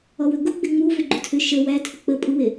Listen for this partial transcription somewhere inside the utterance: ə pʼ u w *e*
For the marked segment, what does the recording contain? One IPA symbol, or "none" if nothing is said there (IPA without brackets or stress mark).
e